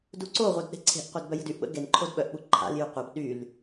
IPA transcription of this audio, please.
d u ǀ o ʁʷ œ d ɗ e̤ ǀʰ e̤ ʔ qʷ e d b œ j ə̤ d y ʔ ɓ ə̰ ɡ e n ǃʰ o d ɓ œ ʔ ɓ u ǃʰ a̰ l j y qʷ a b ɗ y l

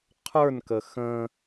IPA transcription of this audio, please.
qʰ ə˞ n k ə x ə̃

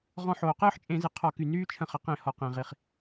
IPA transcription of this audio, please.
ʁ ɔ̃˦ ħ oː˩ q ɯː˦ ħ t͡ʃʼ ẽ˧˩˧ z ɯ˩ qʰ ɔ˧˩˧ k y˩ n yː˦ t͡ʃʰ ə̃˧˩˧ χ ə˩ q ẽ˧˩˧ h ɔ˩ q ẽ˩ ʁ i˩ χ

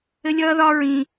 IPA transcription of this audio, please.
ɘ˥ lʲ ʌː˥ ð ɒ˥ ɹ ĩ˧

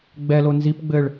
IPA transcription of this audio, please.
ɡ͡b ɛ l o n z i p ɡ͡b ɘ ɭ

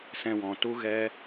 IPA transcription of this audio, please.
s ɛ̃˧ w ɔ̃˨ t u˦ ɣ ɛ˦

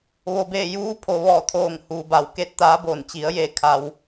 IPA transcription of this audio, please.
ʋ o˩ b eː˧˩ j uː˧˥ pʰ o˩ ʋ ɔː˧˩ t̪ʰ oː˧˩ ŋ h uː˩ b a˩ w k e˥˨ t̚ t̪ aː˧˥ b oː˧˩ n t͡ɕ i˩˧ ə̯ j e˧˩ kʰ a˧ w

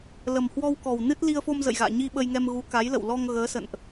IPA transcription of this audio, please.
l ə˨˩ m h w ɔ˧ w k ɔ˨˩ w n ɨ˦˥ t̚ l i˧ ə̯ f o˧ m z ə̰˧˨ j ɣ a̰ː˧˨ ɲ i˧ ɓ ə˧ j ŋ ɛ˧ m ɣ u˨˦ k a˨˦ j l ə̰˧˨ w l ɔ˧ ŋ ɣ əː˨˦ s ə̰˧˨ n ʔ

